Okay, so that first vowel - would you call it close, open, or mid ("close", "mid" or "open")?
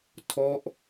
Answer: mid